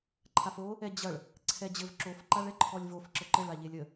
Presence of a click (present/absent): present